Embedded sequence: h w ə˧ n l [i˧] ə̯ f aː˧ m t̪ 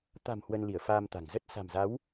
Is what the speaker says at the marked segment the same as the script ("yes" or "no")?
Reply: no